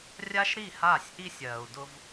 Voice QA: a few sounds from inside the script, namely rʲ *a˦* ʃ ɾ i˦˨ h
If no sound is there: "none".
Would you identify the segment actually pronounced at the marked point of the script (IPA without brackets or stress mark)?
a˦